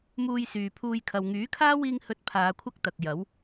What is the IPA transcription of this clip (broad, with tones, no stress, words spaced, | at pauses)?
muː˧jsyː˨ pʰuː˧j kʰɐ˨wŋyː˨˥kʰaː˥ wiː˧ŋhɵ˨˥t̚ pʰaː˨˧kʷʰɐ˥k̚t̪ɐ˨k̚jɐ˨˥w